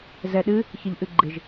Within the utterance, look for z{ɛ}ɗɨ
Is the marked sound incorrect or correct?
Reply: correct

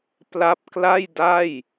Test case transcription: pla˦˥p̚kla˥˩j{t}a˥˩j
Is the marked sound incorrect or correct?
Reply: incorrect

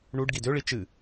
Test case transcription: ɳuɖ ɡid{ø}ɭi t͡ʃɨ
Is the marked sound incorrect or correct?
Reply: correct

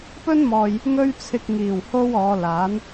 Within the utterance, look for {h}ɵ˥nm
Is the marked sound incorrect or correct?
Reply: incorrect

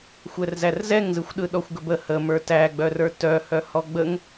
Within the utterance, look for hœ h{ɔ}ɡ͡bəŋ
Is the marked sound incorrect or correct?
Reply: correct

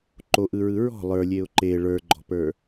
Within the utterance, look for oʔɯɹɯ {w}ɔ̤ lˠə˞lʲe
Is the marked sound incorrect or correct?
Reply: incorrect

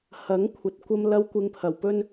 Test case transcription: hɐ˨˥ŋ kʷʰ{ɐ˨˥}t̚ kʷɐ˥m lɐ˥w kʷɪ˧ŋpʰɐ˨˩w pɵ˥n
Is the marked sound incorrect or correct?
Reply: correct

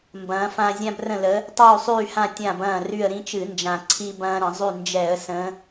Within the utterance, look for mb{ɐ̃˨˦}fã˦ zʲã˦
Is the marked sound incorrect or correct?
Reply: incorrect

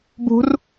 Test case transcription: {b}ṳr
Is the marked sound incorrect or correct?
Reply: correct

